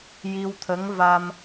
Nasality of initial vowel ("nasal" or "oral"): oral